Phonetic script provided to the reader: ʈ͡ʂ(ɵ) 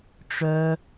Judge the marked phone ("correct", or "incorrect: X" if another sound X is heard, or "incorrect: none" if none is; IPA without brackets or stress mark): incorrect: œ